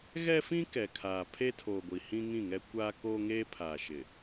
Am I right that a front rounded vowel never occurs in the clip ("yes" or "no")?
yes